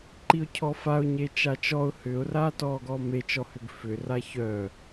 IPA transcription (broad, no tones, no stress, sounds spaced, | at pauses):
ǃ i ʊ̯ cʰ ɔ f a ʊ̯ ɲ e t͡ʃ a t͡ʃ ɔ ʊ̯ h ʏ ʊ̯ r aː t ɔː ɡ ɔː m e t͡ʃ ɔ h ʏ ɡ f ʏ r a ç œ